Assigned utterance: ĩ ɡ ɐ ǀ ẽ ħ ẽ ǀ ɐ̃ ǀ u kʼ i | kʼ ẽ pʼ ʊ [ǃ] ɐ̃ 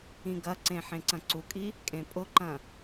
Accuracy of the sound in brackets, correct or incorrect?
correct